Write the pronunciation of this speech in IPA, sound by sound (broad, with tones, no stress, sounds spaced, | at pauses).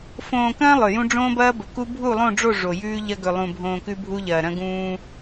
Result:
f õː˨ k ɐ̃ː˦ lˠ ɵ˨ j ũ˦ ɖ͡ʐ õː˦ b ɐː˦ b ɵ˨ k u˦ bʱ u˦˨ lˠ õ˦˨ ɖ͡ʐ o˦˨ ʐ o˨ j ʉː˦ ʎ ɐ˦ ɡ ɵ˨ lˠ ũ˨ bʱ õː˨ k ʉ˦ bʱ u˦ ʎ ɐː˨ ɾ ɐ̃˦ ɡ ũː˦